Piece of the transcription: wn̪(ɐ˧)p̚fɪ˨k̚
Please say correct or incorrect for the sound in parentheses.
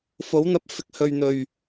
correct